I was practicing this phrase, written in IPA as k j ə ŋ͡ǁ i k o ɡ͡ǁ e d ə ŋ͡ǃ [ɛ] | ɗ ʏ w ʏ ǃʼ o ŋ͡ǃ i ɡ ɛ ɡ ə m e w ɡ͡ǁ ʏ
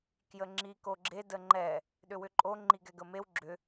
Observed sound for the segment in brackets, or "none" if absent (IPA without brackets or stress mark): ɛ